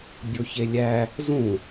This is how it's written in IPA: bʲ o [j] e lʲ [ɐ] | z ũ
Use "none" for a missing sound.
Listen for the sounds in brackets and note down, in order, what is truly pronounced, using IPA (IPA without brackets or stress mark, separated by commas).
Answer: ç, æ